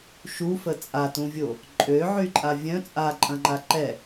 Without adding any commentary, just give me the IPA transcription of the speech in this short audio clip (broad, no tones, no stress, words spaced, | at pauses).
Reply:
ʃufə t͡sʼatũvʲo | ǃʼøʕyǃʼa vʲœ̃ t͡sʼaǃʼɐ̃ŋ͡ǃa ǃɛ